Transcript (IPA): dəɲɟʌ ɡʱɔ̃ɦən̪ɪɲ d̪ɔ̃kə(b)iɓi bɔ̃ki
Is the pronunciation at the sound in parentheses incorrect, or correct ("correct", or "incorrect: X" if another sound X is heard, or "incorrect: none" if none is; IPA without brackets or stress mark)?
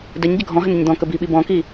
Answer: correct